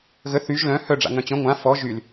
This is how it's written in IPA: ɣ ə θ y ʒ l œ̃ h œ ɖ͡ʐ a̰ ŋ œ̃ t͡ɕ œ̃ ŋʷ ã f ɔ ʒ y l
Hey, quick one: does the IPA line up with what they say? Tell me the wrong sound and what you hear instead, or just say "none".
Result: none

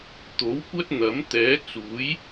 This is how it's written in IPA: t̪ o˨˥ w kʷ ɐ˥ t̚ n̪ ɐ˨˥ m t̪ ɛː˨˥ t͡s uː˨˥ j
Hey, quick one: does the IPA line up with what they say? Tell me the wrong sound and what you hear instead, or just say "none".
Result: none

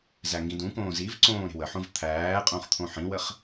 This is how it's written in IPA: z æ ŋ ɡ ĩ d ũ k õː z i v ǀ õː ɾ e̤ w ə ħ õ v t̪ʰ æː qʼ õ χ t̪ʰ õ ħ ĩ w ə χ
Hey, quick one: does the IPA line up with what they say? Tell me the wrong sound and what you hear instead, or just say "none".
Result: none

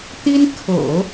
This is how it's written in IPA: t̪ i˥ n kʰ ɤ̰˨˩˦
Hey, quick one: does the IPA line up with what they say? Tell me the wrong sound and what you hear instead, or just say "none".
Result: none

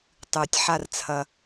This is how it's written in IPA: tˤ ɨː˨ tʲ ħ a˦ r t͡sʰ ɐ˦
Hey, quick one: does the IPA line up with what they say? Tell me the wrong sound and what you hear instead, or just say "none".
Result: none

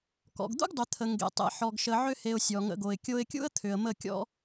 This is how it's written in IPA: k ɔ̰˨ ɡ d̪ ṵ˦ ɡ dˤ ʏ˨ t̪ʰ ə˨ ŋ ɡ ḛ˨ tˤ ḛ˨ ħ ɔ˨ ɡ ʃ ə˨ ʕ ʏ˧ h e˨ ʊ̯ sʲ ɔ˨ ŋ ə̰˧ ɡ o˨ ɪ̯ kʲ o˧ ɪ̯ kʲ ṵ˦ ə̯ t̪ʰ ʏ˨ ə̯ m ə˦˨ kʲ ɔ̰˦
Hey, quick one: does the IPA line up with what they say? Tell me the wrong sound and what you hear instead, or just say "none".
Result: none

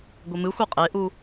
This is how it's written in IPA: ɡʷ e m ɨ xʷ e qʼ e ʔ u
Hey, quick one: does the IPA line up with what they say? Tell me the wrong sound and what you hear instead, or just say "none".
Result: none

